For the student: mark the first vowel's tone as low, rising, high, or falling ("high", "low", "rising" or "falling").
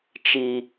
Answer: high